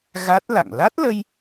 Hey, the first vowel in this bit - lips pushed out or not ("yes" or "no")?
no